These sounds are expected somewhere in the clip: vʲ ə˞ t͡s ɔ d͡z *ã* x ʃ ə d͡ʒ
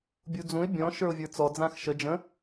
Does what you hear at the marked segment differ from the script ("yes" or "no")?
no